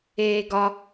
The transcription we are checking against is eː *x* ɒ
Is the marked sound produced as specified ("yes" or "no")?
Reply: no